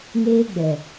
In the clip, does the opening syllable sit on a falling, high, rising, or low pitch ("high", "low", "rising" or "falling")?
high